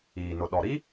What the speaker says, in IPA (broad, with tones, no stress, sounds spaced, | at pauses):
iː˨ n ʊ˨ ɗ ɔ˨ ɾ i˦